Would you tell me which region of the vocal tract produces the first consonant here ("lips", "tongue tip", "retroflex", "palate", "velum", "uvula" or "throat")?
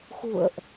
velum